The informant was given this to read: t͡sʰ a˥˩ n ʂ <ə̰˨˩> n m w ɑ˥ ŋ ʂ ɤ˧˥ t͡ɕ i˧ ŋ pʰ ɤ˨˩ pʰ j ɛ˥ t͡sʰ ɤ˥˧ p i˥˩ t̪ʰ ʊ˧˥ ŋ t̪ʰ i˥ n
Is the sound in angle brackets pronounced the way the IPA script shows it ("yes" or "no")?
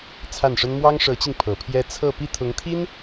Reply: no